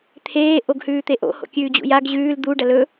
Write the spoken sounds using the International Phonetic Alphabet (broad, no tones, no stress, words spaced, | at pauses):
t̪ʰeː ʔoɡhʉːt̪eʔo̰ ho̰kʲʉːd͡ʑṵjaɡ ʑʉːl d̪u ɖɐlɵ